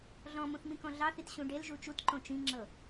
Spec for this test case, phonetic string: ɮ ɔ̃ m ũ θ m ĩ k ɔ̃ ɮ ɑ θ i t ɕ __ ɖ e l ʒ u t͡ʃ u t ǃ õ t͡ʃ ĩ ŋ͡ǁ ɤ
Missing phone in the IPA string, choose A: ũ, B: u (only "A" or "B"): A